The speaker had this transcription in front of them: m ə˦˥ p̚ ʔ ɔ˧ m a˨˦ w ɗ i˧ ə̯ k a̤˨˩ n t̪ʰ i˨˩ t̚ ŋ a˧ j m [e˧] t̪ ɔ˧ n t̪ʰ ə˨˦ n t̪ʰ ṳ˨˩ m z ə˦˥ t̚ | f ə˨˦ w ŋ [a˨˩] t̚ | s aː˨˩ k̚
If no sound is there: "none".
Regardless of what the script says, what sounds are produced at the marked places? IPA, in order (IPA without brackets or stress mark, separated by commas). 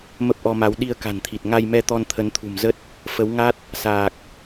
ɛ˧, a˦˥